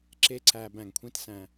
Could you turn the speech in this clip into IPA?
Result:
ǁ e˥ ǀ æ˧ b æ̃˧˩ ŋ kʷʰ ẽ˥ t s æ̃˧

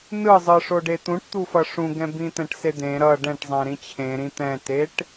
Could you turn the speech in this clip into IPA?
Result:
n ɯ zˤ ɯ ʂ o ɖ e t̪ ũ ʈ t̪ u f ʌ ʂ ũ ɡ ɛ̃ b ĩ t̪ ɛ̃ ʈ s e d̪ ẽ ɾ ʌ ɖ ɛ̃ ʈ zˤ ɛ̃ ɾ ĩ t͡ɕʰ ẽ ɾ ĩ t̪ ɛ̃ t e ʈ

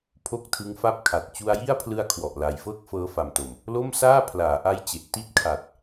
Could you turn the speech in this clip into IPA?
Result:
pʰ o˥˩ k̚ tʰ ɯ˦˥ ŋ f a˥˩ p̚ kʰ a˨˩ t̚ t͡ɕ u˧ a̯ j i˥˩ a̯ pʰ l ɯ˧ a̯ kʰ w ɔ˨˩ ʔ l a˨˩ j f ɤː˥˩ k̚ f ɤː˦˥ f a˨˩ m t o˨˩ m | l o˥˩ m s aː˥˩ pʰ l aː˩˦ ʔ a˦˥ j t͡ɕ e˨˩ ʔ t i˥˩ t̚ kʰ a˨˩ t̚

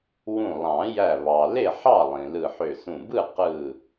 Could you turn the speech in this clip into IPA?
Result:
w ũ˧˩ lˠ ɑ̃˨˩˦ j æ˧˩ β ɑ˩ l e˥˩ ħ ɑ˥˩ lˠ ĩ˩ l ɯ˧˩ ħ ø˧˩ s ũ˧˩ b ɯ˥˩ q ɯ˧˩

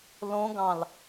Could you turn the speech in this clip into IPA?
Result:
l õ ɡ ɑ̃ l

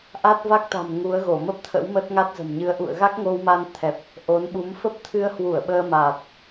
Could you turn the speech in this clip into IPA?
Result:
ʔ a˦˥ t̚ v a˦˥ k̚ t̪ a̤˨˩ m ŋ u˨˦ ə̯ ɣ o˧˩ m ə˦˥ p̚ t̪ʰ ə̰˧˥ w m ə˦˥ t̚ ŋ a˦˥ t̚ z ə̤˨˩ m ɲ ɨ˧ ə̯ ʔ ṵ˧˨ ə̯ ɣ a˦˥ k̚ ŋ o˧ w m a˧ n t̪ʰ ɛ˨˩ p̚ | ʔ o˨˦ n ɓ u˨˦ m f ə˦˥ p̚ t̪ʰ ɨ˧ ə̯ h w u˧˩ ə̯ ɓ əː˧ m a˨˩ t̚

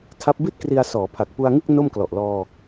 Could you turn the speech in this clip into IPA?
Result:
tʰ a˦˥ p̚ b i˥˩ t̚ k r i˧ a̯ s ɔː˩˦ pʰ a˨˩ k̚ p u˧ a̯ ŋ ɯ˥˩ k̚ n o˥˩ m k l ɔ˨˩ ʔ l ɔː˧

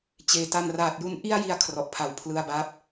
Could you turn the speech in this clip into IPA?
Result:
t͡ɕ eː˩˦ t a˧ n r aː˨˩ t̚ j u˦˥ n ʔ i˥˩ a̯ j i˧ a̯ kʰ r ɔ˨˩ ʔ pʰ a˨˩ w pʰ l ɯ˧ a̯ b a˦˥ p̚

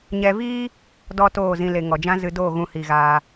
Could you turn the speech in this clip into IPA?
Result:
ɲ ɛ˧ v iː˦ | d ɔ˦ t oː˦˨ z ĩ˧ l e˨ ŋ ɔ˨ d͡ʒ ã˦ z ɨ˧ d oː˦˨ ɣ ũ˧ h i˨ ɣ aː˧

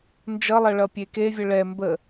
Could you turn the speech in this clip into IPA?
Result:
n d͡ʒ ʌ lˠ ɐ ɭ ʌ pʲ e k e vʲ ə ɭ ɛ m b ə

